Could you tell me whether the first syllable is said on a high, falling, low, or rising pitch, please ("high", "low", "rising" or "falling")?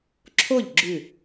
falling